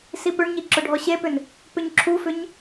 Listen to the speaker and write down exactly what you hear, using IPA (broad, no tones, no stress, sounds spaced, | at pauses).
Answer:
s i p ʏ ɳ ɲ i ǁ ʊ ɖʱ ɔ ɕ e p ʏ n | p ʏ ɲ ǁʰ u f ʏ ɲ